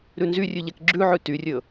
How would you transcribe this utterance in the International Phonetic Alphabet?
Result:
ɾ ʉ n z y rʲ ʉ ʎ ɛ k ɡ͡ǁ ʉ ʕ ʉ t y rʲ ɵ

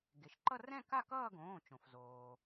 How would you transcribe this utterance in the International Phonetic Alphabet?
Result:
ɡ e˩ ʃ ǃ ʌ˥˧ r ɛ̃˥˧ k a˥˧ k ʌː˥˧ ɡ õː˩˧˩ t͡ʃ õ˩ f z oː˩

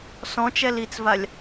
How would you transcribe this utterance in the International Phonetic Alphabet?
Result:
s ɔ̃ t͡ʃ ɛ l i t͡s v a lʲ

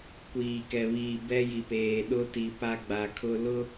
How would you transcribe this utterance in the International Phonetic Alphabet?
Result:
kʷ iː˨ k ɛ˨ β iː˨ b ɛ˦ j i˨ p eː˨ ɗ ʊ˦ t i˨ p a˦ ɡ͡b a˨ kʰ ʊ˦ l ʊ˦

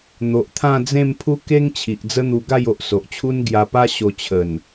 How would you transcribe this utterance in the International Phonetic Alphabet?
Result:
n̪ o˨ ʔ t̪ʰ ã˥˧ d͡z ẽ˥˧ m pʰ u˦ k e˦ ŋ t͡ɕʰ i˨ ʔ d͡z ə˦ n̪ u˧ ɡ a˥˧ j o˨ ʔ s o˨ ʔ t͡ɕʰ u˦ n ɡ j a˧ p a˦ ɕ o˧ t͡ɕʰ ə˨˩ n

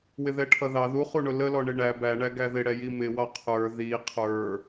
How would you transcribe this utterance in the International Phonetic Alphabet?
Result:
w ɪ ð ɛ ʈʰ ʌ ð ɑ ð u χ u ɳ ʊ l ə l ɔ ɳ ɪ ɳ æ b æ ɳ æ ɡ æ ð ɪ ɽ ɛ j i m ɪ w ɑ qʰ ə˞ ð i qʰ ə˞

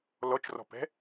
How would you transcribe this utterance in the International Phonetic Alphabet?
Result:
l ɔ t͡ʃ r ɔ̤ p ɛ̤

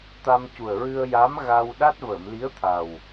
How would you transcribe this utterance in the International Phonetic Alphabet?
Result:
t̪ a˧ m c u˨˩ ə̯ ɹ ɨ˧ ə̯ j a˧˥ m ɣ a˧ w ɗ a˦˥ t̚ v əː˨˩˨ m l i˧˥ ə̯ t̪ʰ a˨˩ w

